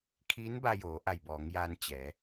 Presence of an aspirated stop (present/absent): present